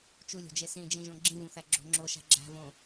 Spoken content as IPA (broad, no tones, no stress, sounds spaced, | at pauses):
t͡ʃ u lʲ o̤ d͡ʒ e s ĩ d͡ʒ ĩ ʒ õ ɡ͡ǁ ĩ v ũ θ æ ɡ͡ǁ o̤ ŋ͡ǁ o ʃ æ̤ ɡ͡ǁ æ̤ v õ